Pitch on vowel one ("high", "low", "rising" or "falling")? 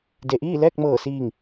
low